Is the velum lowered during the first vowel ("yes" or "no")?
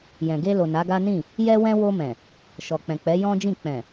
yes